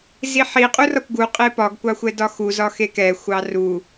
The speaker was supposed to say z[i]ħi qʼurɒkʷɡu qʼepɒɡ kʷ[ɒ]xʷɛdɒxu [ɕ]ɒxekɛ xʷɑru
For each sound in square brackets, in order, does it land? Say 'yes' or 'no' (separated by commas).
yes, no, no